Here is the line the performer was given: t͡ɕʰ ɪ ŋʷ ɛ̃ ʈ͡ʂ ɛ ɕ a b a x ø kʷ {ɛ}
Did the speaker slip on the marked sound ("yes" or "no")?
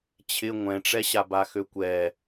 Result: no